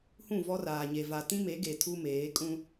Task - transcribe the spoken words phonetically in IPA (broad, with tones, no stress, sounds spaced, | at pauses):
h ũ˦˨ v ɔ˦ r aː˨ ɲ e˨ v a˨ t ĩ˦ m e˨˦ ɡ e˨ tʰ u˦ m eː˨˦ kʼ ũ˦